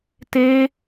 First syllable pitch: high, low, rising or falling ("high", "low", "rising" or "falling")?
high